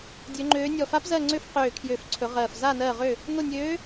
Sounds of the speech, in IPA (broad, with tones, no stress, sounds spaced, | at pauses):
dʲ ø˧˥ ŋ͡ǃ øː˧˥ nʲ ɔ˦˨ f a˧˥ p z ɜ˦˨ ŋ͡ǀ ø˧˥ f q øː˦˨ kʰ j ø˦˨ f ǀʰ ɵ˧˥ ʁ ɜː˦˨ f z a˦˨ n ɜ˦˨ ʁ ø˦˨ | n o˦˨ nʲ øː˧˥